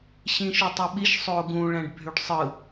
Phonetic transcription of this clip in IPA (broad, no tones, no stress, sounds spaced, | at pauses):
ɕ ĩ ʃ u tˤ o ɓ i ʃ sˤ o ɡ ũ ɭ æ̃ ɖ bʱ y ɖ sˤ ɯ